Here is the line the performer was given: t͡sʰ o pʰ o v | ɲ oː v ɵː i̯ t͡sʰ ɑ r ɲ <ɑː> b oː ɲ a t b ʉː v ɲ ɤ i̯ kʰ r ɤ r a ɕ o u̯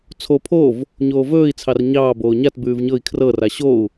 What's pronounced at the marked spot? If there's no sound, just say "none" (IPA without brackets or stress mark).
ɑː